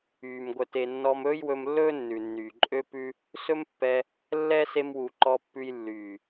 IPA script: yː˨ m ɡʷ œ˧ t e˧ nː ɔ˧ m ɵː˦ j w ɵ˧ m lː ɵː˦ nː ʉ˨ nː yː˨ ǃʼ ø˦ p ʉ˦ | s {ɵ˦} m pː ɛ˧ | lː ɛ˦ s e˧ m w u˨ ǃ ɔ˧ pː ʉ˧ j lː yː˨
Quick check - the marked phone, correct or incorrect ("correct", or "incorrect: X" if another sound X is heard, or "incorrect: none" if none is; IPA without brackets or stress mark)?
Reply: correct